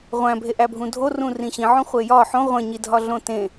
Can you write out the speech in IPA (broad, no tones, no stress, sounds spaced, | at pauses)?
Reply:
ʁʷ æ̃ bʱ e ʔ æ bʱ ũ dʱ o r ũ r ĩ ɕ ĩ ʕ õ χʷ e j ɒ ħ õ ʁʷ ẽ ɲ i dʱ ɒ ɮ õ t ẽ